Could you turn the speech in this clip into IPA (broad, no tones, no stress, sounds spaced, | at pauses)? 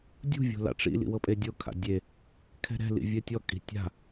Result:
dʲ ṳ vʲ o̤ l a̰ ʈ͡ʂ ḭ l ḭ w ɤ pʼ e dʲ o kʰ a̰ dʲ e | kʰ ɛ̤ ɾ ɛ̤ l ḭ vʲ ɛ tʲ ɔ kʼ i̤ tʲ a̤